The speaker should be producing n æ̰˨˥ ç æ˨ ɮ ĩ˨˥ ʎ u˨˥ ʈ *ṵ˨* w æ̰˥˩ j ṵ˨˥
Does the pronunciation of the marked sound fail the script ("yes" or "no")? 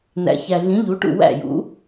yes